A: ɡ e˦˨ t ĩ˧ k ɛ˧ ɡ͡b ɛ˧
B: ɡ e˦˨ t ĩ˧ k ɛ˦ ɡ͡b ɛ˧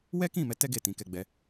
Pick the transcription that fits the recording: A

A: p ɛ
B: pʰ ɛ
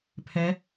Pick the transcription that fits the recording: B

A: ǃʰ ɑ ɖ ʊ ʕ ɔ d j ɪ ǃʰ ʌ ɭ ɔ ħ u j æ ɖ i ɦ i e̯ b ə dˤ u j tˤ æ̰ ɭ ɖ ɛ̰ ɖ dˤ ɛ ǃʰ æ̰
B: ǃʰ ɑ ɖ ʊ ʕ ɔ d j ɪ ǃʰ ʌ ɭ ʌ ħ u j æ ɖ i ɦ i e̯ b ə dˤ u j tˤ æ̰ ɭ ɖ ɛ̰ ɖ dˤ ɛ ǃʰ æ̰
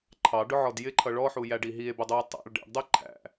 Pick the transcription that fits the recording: A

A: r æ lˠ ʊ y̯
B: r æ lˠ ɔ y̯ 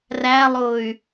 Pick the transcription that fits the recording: A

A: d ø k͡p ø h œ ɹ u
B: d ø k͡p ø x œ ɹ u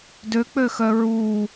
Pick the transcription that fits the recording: B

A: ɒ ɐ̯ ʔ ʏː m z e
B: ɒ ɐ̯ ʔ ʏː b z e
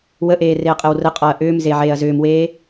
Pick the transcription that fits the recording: A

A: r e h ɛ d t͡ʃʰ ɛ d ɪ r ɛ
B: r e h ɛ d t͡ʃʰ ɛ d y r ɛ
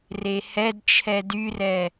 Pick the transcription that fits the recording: B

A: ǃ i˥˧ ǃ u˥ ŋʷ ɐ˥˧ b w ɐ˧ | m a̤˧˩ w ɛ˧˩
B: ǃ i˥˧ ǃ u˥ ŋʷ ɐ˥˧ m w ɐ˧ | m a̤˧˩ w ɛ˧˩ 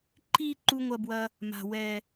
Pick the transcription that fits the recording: A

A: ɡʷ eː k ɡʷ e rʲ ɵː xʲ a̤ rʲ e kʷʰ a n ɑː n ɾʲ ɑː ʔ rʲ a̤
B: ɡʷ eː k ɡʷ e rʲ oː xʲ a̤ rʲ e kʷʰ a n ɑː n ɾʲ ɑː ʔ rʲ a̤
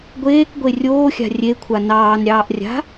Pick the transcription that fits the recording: B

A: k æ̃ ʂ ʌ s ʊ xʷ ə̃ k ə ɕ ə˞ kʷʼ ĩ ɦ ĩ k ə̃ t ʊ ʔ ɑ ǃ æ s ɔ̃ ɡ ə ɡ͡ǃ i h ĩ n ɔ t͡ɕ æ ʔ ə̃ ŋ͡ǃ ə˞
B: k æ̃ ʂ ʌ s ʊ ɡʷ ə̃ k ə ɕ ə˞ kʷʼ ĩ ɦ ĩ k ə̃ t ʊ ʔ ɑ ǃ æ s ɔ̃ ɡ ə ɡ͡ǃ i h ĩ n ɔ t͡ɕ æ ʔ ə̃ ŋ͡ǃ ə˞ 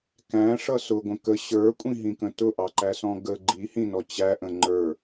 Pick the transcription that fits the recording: B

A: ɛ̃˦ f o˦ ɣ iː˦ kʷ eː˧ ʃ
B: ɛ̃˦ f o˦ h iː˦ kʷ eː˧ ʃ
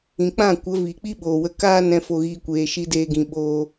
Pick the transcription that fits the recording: A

